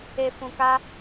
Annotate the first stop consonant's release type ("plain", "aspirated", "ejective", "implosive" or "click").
plain